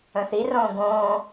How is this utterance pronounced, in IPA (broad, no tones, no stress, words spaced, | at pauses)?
ə̃θirõː ɡõː